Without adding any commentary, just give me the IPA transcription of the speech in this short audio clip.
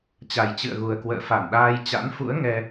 t͡ɕ a˨˩ j t͡ɕ ɨ̰˧˨ ə̯ ɣ u˨˩ ə̯ k w ə̰ː˧˨ f a˧˩ n ɗ aː˧ j t͡ɕ a̰˧˥ n f ṵ˧˥ ə̯ ŋ ɛ˧

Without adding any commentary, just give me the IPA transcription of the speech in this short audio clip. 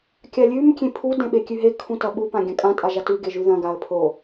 kʲ a lʲ ʉ m kʲ ẽ pʰ u d ẽ ɓ e kʲ ʉ ɦ e kʰ ũ t ɐ ɓ u p ã ɡʲ ɐ̃ kʼ ã tʼ a ʒ a t ʉ ɡ e ʒ ʉ ð ɐ̃ ɡ a ə̯ pʰ o

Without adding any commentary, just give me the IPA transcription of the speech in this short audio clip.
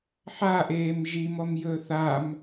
ħ a ʔ eː m ʒ i m ɔ m j ɵː θ a m

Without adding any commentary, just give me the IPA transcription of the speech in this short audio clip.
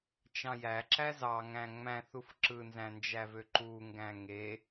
t͡ʃ ɑ̃ j æ ǁ æ z ɑ ŋ æ̃ ŋ͡m æ̃ θ u f ǁ ɯ n z æ̃ n d͡ʒ æ v ø ǃ u ŋ ɡ æ̃ ŋ e

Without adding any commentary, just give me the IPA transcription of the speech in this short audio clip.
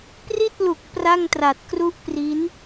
p r i˥˩ t̚ l u˨˩ k̚ p r a˥˩ ŋ t r a˨˩ t̚ k r u˥˩ ʔ p r i˦˥ n

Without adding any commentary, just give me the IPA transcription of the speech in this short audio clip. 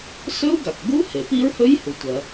s ɵ˦˥ u̯ ɡ a˩ k ɡ u˦˥ h e˩ p i˦˥ ɹ h ɵ˦˥ j h u˩ tʷ ɐ˩

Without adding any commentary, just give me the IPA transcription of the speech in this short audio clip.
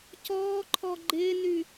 c ɔː ǃʰ ɔ ɡ͡ǃ ɪː n y

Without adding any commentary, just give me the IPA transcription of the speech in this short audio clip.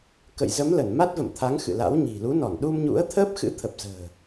k ə̰˧˨ j z ə˨˦ m l ə˧˩ n m a˦˥ t̚ v ə̰˧˨ m t̪ʰ a˨˦ ŋ x ɨ̰˧˨ l a̰˧˥ w ɲ i̤˨˩ l u˨˦ n ɔ˧˩ n ɗ u˧ m ɲ ṵ˧˥ ə̯ t̪ʰ əː˦˥ p̚ x ɨ̰˧˥ t̪ʰ ə˨˩ p̚ z ə̤ː˨˩

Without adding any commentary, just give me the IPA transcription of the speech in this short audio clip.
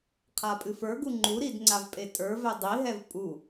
qʰ a pʼ ɨ f ə˞ ɡ u ŋ͡ǃ u ɾ i d ŋ͡ǀ a v pʼ e tʼ ə˞ v ɛ dˤ i ɦ ɛ v pʼ u

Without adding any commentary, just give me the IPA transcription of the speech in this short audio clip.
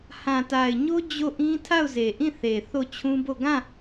h ã˨ t a˨ ɪ̯ ɲ o˦ d͡ʑ o˦˨ ʔ ĩ˦ tʰ a˦˨ ʊ̯ z e˨ ʔ ĩ˦˨ θ e˨ θ o˦˨ t͡ɕʰ ũ˦ b o˦˨ ɡ ã˦˨

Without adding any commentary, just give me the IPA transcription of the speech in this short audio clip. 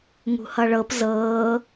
ŋ ṳ h ʌ ɭ ɤ p z ɤː

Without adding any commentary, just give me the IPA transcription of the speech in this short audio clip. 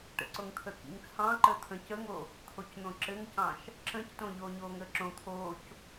ʈ ə̰ ǀ o ŋ t̪ʰ ə k ḭ ŋ t͡sʰ ɑ̃ ǃ əː t̪ʰ ə̃ c ə ŋ o | t̪ʰ o c n̪ õ ǁ ɘ ŋ c ɑ̃ ʃ | ǁ ə̃ c t õ ʎ oː ɲ oː ŋ əː ǁ õ t̪ʰ oː c

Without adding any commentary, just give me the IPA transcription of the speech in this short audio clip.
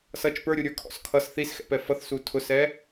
s ʌ t͡ʃ p ə˞ ɾʲ u ɾʲ ə˞ kʰ ɔ̰ s kʰ ʌ s θ i s x ɛ̰ p ɛ f ʌ θ s u tʰ ʊ s ɛ

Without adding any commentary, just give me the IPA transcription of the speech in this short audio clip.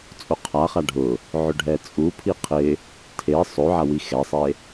t͡sʼ o qʰ a χ a ɖʱ ʊ | ʕ ʊ ɖʱ ɛ t͡sʼ u pʰ i qʰ ɪ | tʰ e sˤ o ʕ a w i x ɛ sˤ e

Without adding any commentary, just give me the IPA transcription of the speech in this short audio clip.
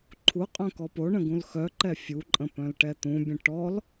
ǃʰ u qʼ œ̃ k ɔ p o ɳ ə̃ ɡ ũ l x œ ǃ ɛ fʲ u ǃʼ ə̃ p œ̃ l ʈ ɛ t̪ ũ bʲ ə̃ ʈ ɔ l

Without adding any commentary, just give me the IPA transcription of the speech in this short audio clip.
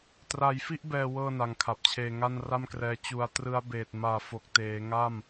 t r a˧ j f i˥˩ ʔ b ɛː˧ w ɤː˥˩ n a˧ ŋ kʰ a˨˩ p̚ t͡ɕʰ eː˧ ŋ a˥˩ n r a˥˩ m k r ɛː˧ t͡ɕ u˧ a̯ t r ɯ˦˥ a̯ b eː˨˩ t̚ m aː˨˩ f o˨˩ k̚ t eː˩˦ ŋ a˥˩ m

